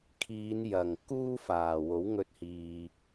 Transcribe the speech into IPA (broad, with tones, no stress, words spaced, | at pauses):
kʰiː˨˧n jɐ˨˩ŋ kuː˥ faː˨˩ wo˨˥wŋɵ˧t̚hiː˨